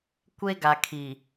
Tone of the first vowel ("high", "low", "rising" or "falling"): high